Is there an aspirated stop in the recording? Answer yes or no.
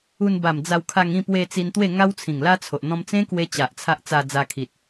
yes